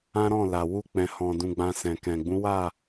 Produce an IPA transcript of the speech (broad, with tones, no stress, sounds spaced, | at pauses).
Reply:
ã˦ ɾ ɔ̃˦˨ l a˨ w u˧ k͡p ɛ̃˨ h ɔ̃˨ d ũ˧ ɡ͡b ã˧ s ɛ̃˨ k ɛ̃˨ ɡ͡b ũ˨˦ w a˦˨